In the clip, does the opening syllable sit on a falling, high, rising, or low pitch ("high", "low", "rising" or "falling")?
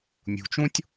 low